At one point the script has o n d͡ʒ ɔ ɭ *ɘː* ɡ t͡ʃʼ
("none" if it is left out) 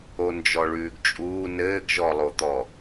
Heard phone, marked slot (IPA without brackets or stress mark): ʉː